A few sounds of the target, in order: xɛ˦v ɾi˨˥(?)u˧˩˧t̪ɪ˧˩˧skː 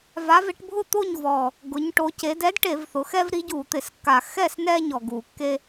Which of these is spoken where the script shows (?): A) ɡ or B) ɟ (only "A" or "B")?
B